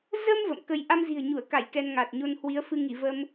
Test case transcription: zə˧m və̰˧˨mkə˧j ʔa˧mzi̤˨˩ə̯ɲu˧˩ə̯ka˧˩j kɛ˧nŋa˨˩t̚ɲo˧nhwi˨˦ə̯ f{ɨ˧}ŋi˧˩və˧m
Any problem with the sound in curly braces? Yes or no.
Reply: no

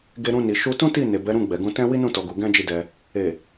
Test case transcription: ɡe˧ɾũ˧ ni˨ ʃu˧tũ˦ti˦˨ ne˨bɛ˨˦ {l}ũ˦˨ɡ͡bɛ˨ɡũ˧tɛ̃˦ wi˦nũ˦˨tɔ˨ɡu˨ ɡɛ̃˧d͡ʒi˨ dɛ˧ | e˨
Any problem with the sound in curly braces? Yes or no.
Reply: yes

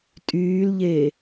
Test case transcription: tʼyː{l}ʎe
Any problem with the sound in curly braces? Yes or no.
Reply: no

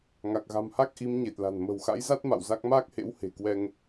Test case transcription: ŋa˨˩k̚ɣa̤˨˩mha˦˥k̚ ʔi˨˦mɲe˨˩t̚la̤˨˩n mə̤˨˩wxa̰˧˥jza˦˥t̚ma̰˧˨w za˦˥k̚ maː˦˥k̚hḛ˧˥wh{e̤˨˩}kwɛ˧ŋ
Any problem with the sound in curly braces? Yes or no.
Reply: no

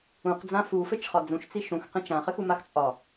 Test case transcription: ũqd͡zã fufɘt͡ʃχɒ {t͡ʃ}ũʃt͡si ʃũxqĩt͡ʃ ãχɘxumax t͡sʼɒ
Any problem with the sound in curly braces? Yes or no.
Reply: yes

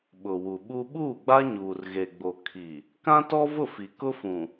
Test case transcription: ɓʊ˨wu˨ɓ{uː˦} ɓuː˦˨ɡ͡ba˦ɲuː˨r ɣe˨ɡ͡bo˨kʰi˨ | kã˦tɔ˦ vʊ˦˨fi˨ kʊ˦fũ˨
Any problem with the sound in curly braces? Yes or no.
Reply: yes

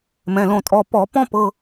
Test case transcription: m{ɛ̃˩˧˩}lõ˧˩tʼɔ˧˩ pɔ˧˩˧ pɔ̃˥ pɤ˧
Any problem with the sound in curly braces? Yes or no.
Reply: no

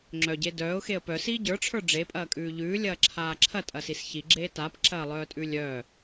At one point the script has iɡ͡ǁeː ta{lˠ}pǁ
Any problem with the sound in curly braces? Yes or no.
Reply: yes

